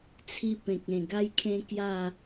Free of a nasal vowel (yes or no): no